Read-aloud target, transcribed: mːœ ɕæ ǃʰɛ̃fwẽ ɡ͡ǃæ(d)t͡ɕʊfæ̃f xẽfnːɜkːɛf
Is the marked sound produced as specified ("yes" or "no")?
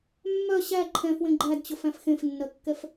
yes